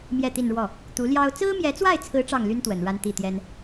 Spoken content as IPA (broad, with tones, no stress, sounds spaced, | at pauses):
m j ɛ˥˧ t̪ i˥˧ n ɻ w ɔ˥˩ | t̪ u˧˥ l j ɑ˥ ʊ̯ t͡s ɹ̩˥ m j ɛ˧˥ t͡s w a˥˩ ɪ̯ t͡sʰ ɹ̩˧˥ ʈ͡ʂ ɑ˥˩ ŋ l y˥ n t̪ w ə˨˩ n ɻ a˥ n t̪ i˥˩ t̪ j ɛ˥ n